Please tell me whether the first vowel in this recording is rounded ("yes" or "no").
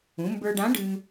yes